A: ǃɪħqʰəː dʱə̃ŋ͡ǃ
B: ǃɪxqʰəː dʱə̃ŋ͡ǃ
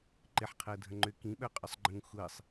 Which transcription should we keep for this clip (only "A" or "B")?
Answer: A